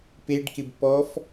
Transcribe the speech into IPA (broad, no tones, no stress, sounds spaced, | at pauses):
p e ɖ k ɪ b p ɔ f